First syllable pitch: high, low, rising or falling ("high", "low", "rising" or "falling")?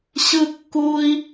high